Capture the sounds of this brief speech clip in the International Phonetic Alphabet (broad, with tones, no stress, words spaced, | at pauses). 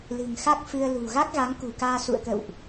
lɨ̤˨˩ŋxa˦˥k̚fɨ˧ə̯lṳ˨˩ ɣa˦˥k̚ɣa˨˦ŋkṳ˨˩kaː˧ sṵ˧˨ə̯kə̰˧˨wʔ